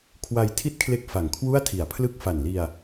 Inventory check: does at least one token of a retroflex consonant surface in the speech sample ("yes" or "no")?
no